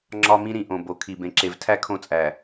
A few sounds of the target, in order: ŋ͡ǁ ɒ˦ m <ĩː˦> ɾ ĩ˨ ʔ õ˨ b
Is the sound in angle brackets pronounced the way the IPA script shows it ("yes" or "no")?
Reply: no